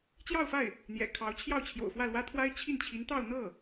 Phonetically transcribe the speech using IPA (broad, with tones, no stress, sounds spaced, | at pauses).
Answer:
t͡ɕ j ɑ˥˧ ʊ̯ f a˥˩ ɪ̯ | n̪ j ɛ̰˨˩ kʰ ɑ˧˥ ʊ̯ t͡ɕʰ j ɑ˥˩ ʊ̯ t͡ɕʰ j o̰˨˩ ʊ̯ f w ä˥˩ l w ä˥ t̪ʰ w a˥ ɪ̯ t͡ɕʰ i˥˩ n t͡ɕʰ i˧˥ n t̪ ɑ˥˧ ʊ̯ n̪ ɤ˥˩